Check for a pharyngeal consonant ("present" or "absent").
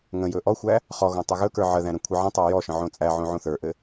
present